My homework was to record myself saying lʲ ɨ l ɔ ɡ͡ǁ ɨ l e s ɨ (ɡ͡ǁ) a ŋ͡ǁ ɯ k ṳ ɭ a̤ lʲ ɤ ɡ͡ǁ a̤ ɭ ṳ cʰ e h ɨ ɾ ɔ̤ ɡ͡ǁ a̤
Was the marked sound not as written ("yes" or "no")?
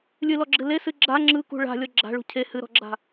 no